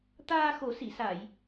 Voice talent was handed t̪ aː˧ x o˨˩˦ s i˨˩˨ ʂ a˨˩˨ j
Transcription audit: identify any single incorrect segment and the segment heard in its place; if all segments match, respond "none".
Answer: ʂ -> s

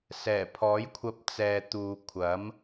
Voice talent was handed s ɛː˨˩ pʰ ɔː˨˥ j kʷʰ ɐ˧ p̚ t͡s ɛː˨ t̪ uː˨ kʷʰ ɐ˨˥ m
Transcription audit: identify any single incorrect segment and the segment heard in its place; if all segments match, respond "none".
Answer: none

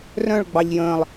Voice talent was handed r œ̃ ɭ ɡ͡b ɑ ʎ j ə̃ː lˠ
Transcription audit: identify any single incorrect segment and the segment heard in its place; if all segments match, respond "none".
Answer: none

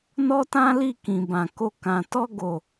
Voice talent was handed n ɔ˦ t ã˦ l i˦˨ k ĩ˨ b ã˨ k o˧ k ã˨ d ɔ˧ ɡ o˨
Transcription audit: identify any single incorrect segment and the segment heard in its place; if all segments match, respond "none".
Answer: d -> t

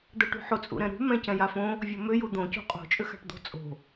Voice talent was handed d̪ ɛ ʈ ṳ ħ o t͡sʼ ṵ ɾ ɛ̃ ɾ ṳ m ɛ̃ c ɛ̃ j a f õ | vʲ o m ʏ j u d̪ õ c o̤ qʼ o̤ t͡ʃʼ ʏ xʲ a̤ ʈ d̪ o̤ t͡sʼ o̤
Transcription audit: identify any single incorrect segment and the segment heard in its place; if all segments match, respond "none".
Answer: xʲ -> x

